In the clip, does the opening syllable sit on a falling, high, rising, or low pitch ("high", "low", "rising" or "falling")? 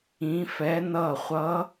rising